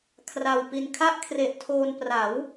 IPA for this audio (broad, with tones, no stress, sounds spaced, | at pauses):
kʰ r a˧ w p i˧ n kʰ a˥˩ ʔ kʰ r e˨˩ ʔ tʰ oː˧ n p r a˩˦ w